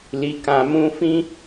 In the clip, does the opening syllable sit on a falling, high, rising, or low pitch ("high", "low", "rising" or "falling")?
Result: low